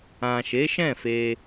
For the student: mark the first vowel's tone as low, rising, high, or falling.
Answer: low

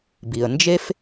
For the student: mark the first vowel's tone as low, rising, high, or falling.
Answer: low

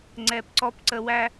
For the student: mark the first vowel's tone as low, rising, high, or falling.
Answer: low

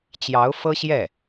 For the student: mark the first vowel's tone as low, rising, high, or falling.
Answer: rising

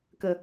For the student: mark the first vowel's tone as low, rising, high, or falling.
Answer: low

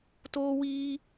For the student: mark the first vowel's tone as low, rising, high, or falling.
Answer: high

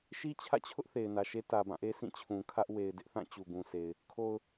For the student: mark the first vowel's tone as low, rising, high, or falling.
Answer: high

